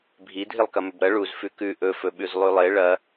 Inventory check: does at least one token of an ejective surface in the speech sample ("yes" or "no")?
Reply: no